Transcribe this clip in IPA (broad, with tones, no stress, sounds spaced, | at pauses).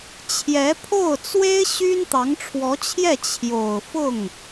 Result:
t͡ɕʰ j ɛ˧˥ pʰ o˥˩ ʊ̯ t͡s w e˥ ɪ̯ ɕ y˥ n t̪ ɑ˧˥ ŋ ʈ͡ʂʰ w ɔ˧˥ t͡ɕʰ j ɛ˥˩ t͡ɕʰ j o˨˩ ʊ̯ f ʊ˥˩ ŋ